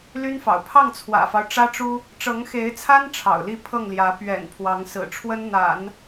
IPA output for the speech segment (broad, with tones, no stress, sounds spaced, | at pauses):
l y˥ n f ɑ̰˨˩ ʊ̯ pʰ ɑ˥˩ ŋ t͡sʰ w ä̰˨˩ f ɑ˦ ʊ̯ ʈ͡ʂ ä˥ ʈ͡ʂ u˥ | ʈ͡ʂ ɤ˧˥ ŋ x e˧˥ ɪ̯ t͡sʰ a˥ n ʈ͡ʂʰ ɑ̰˨˩ ʊ̯ l i˥˧ pʰ ɤ˥˩ ŋ l j ä˧˥ p ɥ ɛ̰˨˩ n pʰ w ɑ˧˥ ŋ s ɹ̩˨˩ ʈ͡ʂʰ w ə˥ n n̪ a̰˨˩˦ n